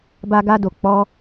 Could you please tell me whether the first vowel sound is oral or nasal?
oral